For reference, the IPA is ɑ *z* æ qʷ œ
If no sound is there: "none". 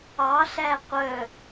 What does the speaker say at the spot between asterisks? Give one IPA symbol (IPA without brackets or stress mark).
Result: ɬ